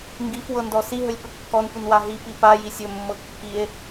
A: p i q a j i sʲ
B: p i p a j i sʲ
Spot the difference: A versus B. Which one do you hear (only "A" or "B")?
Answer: B